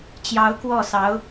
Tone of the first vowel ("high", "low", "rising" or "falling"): rising